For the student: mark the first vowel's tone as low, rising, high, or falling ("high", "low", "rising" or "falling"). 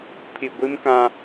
low